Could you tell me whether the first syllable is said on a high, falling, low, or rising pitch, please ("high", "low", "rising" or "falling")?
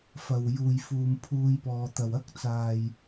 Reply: low